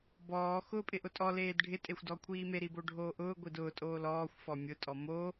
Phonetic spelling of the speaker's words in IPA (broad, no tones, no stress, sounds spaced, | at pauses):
b ɔː x ʊː pʼ ɪ ʔ ʊ tʼ ɔ l eː d ɖʱ ɪ tʼ e xʷ d ɔ kʷʰ iː m e ɾ i b o ɖʱ oː ʔ ʊː ɡʷ i d ʊː tʼ oː l ɔː xʷ f ɔ mʲ ʊ tʼ ɔ m o